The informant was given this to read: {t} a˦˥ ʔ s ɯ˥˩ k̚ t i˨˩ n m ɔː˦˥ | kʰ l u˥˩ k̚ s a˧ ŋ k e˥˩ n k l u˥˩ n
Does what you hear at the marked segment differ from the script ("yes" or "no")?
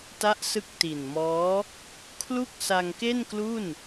no